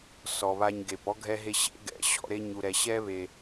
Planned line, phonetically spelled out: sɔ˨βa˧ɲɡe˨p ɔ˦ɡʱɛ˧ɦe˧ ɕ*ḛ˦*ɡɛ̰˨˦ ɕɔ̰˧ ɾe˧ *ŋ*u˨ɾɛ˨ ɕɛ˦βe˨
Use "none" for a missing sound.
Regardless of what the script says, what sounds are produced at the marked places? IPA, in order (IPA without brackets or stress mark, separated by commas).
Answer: ḛ˦, ɲ